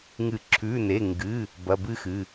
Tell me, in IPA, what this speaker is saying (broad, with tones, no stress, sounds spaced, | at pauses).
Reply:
ŋ ɨ˨˩˦ ǁʰ ʉ˩˧˩ n e˩˧˩ ŋ ɡ ɨ˩˧˩ | b ɐ˩˧˩ b ɨ˥˨ x ɨ˩˧˩